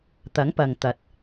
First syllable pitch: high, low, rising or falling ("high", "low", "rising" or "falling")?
rising